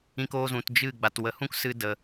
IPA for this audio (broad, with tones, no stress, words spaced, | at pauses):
ĩ˧koː˧zũ˨t d͡ʒɨ˦˨ ɡ͡ba˨twə˨˦hũ˦k sɨ˦də˧